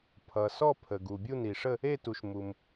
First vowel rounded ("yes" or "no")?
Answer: no